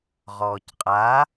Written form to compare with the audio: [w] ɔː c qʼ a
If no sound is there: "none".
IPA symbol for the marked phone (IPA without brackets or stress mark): ʁ